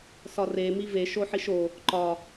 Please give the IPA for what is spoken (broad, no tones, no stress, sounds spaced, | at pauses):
s ɒ r e m i v e ʃ o ħ i ʃ o | ǃ ɒ